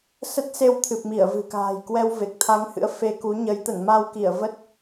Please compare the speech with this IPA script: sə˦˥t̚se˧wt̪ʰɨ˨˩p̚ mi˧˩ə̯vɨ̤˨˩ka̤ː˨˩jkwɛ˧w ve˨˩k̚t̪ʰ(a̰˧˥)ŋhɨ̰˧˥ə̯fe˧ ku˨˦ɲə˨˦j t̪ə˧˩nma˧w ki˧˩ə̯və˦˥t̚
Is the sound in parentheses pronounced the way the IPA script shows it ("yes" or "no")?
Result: no